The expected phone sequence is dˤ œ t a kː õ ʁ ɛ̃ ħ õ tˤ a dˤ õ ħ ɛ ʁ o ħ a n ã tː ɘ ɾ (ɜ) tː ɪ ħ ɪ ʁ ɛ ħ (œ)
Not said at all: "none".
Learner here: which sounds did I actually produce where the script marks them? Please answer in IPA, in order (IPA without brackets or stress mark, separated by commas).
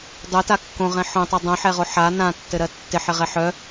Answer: ɜ, œ